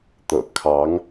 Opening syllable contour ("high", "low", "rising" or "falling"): low